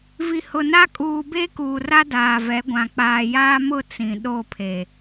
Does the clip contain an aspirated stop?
yes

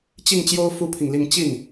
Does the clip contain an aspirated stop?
yes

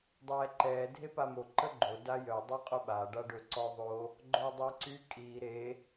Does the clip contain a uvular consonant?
yes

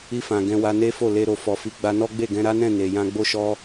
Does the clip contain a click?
no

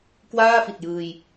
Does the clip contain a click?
no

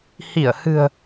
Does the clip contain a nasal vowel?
no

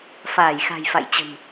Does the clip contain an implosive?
no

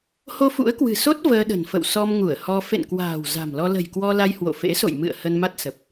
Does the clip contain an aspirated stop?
no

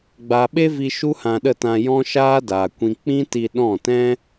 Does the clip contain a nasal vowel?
yes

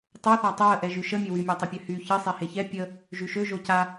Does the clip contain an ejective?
no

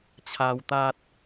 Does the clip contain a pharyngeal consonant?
no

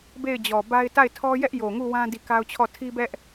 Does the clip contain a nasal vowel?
yes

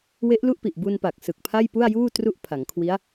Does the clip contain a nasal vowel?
no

